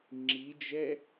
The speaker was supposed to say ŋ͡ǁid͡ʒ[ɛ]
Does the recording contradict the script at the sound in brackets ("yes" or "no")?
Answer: no